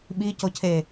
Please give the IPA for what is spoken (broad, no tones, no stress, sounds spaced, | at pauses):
ɓ i c o cʰ e